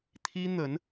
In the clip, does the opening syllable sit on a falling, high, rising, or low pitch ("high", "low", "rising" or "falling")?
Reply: high